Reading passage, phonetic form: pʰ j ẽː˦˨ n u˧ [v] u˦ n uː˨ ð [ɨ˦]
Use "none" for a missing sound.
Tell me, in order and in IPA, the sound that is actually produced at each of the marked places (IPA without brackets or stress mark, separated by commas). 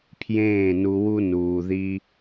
w, i˦